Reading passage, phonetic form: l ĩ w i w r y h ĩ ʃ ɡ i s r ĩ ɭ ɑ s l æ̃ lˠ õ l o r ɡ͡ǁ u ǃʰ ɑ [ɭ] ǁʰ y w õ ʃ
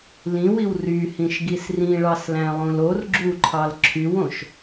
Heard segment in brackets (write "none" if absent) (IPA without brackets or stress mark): l